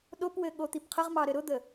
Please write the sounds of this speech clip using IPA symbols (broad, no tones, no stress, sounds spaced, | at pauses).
ɗ o p w ɘ ɠ o t̪ i p qʰ ə ʁ m ɑ ɾ ɘ ɾ ʊ d̪ ə